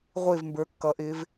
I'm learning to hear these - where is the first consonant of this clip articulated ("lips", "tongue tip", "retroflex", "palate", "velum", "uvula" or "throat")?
uvula